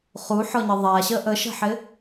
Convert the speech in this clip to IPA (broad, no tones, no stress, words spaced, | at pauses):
χuħɔɲɪ ðˤaɕə ʔəʃə̤ħɪ